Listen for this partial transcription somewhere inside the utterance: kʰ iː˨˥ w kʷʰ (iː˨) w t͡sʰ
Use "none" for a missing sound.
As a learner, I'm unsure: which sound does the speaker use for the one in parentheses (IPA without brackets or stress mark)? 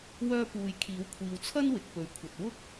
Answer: iː˨